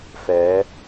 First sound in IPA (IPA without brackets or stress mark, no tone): f